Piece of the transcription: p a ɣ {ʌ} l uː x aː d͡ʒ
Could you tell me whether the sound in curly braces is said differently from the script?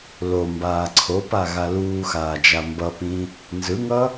yes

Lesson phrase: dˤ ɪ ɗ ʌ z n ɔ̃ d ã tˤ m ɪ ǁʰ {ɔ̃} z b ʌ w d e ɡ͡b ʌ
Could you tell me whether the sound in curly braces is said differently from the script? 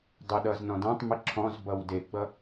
no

